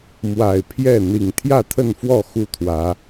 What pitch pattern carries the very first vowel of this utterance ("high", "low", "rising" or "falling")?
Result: low